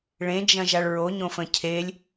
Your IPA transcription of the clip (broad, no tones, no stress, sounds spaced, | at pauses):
ɭ ẽ d͡ʒ ɐ̃ ʒ a ɭ ɹ o ɲ õ f ə̃ cʰ e lʲ